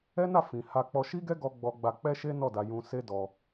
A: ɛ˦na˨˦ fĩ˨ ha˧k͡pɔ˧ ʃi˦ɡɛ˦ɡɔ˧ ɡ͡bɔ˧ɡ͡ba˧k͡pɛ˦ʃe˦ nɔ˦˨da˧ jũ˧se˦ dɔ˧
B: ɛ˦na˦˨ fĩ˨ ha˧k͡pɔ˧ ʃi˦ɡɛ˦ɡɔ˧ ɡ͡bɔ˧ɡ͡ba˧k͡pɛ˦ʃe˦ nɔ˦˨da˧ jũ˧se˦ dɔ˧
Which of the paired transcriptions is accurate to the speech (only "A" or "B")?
B